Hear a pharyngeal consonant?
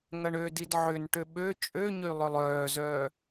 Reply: yes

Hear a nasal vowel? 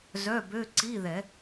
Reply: no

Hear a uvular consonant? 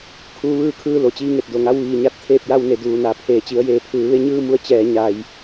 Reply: no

